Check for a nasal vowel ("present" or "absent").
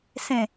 present